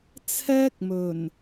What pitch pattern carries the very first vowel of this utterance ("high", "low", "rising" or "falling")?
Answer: high